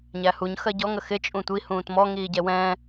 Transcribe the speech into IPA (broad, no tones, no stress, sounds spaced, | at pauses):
ɲ æ h u ɲ x ɜ ɟ ɔ ŋ ə x ɪ t͡ʃʼ ũ tʷ i h ũː t m ɔ ŋ iː ɟ ɛ w ɛ̃ː